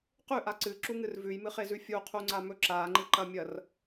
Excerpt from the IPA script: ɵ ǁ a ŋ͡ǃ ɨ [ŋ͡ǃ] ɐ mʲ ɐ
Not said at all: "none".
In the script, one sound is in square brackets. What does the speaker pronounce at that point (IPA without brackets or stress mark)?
ǃ